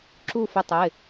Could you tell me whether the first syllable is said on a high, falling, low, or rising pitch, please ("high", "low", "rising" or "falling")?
falling